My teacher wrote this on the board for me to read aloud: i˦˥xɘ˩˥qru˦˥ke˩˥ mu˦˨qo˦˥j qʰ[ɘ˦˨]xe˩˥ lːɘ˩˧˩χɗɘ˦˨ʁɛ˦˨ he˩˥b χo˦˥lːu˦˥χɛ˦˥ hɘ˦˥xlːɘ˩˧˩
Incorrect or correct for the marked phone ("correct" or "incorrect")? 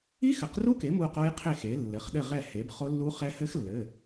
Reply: incorrect